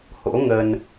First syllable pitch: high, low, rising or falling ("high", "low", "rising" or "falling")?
rising